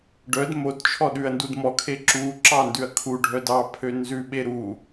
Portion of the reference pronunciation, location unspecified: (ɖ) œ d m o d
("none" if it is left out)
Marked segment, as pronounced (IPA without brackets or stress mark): ɖ